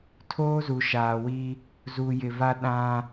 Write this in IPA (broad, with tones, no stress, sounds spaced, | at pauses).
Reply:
tʰ oː˦ z u˨ ʃ aː˨ w i˦ | z u˨ j ɪ˨ v a˦ ɗ ã˦